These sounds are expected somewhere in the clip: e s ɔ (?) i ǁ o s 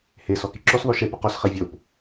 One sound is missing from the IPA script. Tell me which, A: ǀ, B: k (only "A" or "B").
B